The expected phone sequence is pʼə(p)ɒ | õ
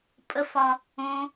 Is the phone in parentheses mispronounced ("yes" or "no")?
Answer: yes